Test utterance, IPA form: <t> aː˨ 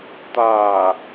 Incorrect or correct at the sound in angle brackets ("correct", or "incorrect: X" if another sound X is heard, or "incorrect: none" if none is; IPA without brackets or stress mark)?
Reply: correct